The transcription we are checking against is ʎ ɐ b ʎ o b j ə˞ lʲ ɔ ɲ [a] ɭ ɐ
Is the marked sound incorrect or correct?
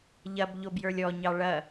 incorrect